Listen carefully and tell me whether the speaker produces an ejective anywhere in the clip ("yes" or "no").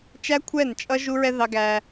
yes